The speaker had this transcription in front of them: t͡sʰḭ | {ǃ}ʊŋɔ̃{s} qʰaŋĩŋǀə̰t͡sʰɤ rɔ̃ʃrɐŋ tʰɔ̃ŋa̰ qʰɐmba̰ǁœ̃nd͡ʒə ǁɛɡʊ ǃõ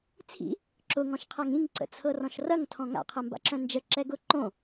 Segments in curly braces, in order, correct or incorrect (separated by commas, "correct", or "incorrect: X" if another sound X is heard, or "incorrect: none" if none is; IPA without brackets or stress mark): incorrect: ǁ, incorrect: ʃ